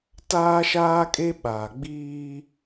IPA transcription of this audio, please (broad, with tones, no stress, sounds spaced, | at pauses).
t aː˦ ʃ aː˦ kʼ e˦ ɓ aː˨ ɡ͡b iː˦